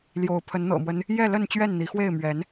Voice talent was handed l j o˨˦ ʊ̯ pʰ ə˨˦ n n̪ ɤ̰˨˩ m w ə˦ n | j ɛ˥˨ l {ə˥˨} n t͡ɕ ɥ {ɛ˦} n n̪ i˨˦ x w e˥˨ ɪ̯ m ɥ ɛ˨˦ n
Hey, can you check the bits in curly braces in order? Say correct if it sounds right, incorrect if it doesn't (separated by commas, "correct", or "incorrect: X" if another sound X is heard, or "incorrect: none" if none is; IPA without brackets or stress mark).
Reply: correct, incorrect: ɛ˥˨